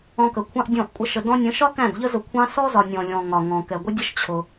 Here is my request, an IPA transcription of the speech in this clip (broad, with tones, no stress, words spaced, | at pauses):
ɔ̃˧kə˨kʷʰɑ̃˦ʔ dʲɔ̃˦˨ʔkʷʼə˦ʃə˧ dɔ̃˧nʲə̃˨˦ʃɒ˦ kæ̃˦˨dʎə˦ zʊ˧kʷʰɑ̃˦ sɔ˦zɒ˨ nʲɔ̃˨lʲɔ̃˨ ŋɒ˨ŋɔ̃˨ kɛ˨ɡʷɪ˦dʲə˦ʃ t͡ɕʰʊ˧